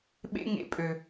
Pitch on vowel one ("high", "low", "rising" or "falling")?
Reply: high